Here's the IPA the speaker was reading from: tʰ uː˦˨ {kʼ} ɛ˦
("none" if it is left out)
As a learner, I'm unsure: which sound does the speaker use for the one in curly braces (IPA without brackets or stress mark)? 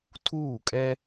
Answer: kʼ